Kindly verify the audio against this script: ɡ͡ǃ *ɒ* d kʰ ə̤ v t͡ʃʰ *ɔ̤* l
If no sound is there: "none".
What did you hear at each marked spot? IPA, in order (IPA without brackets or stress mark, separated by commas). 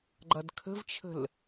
ʌ, ə̤